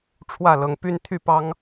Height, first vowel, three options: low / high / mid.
low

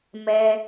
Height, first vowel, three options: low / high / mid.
mid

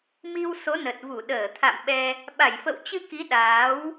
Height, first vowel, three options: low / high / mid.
high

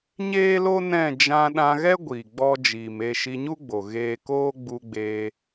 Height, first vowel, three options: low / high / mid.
mid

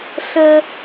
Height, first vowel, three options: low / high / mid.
mid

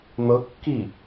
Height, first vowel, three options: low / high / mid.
mid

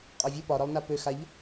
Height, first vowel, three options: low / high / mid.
low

